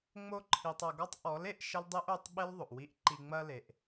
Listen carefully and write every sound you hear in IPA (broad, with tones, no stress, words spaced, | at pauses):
ŋ͡mo˧ǃʰi˨tˤɐ˨ɡɔ˦tˤ ʔɔ˨˦le˧ʔ ʃɐ˦ldˤe˦ʔo˨˦tˤ ɓe˦lðˤo˨ʔwi˧ʔǃi˧ ŋ͡mɐ˧le˨ʔ